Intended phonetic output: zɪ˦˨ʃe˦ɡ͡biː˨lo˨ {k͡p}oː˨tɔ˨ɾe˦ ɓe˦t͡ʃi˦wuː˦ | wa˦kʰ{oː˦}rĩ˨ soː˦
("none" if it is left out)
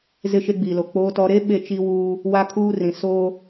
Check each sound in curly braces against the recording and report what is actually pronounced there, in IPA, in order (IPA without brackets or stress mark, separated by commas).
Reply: k͡p, uː˦